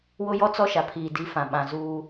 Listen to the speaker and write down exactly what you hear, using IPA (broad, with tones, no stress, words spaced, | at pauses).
wʊ˦jɔ˦t͡sɔ˦ʃa˨ pʰiː˨di˦fã˨ ɓã˨zuː˦